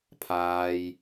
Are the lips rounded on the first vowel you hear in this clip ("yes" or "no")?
no